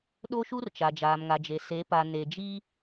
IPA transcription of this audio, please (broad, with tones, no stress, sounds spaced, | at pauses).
ɗ o˦ ʃ u˦ r t͡ʃ a˨ d͡ʒ aː˨ m ŋ a˨ d͡ʒ e˨ s e˨˦ p a˨ n e˨ d͡ʒ i˦